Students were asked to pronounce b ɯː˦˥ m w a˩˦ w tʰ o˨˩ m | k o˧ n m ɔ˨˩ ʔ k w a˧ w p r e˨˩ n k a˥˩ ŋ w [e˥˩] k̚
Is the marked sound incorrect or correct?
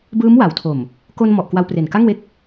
correct